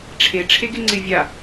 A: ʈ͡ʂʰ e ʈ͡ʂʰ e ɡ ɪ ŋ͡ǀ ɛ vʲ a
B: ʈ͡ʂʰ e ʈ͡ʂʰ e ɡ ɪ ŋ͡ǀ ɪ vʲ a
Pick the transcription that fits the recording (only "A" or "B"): B